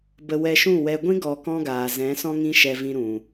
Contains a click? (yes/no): no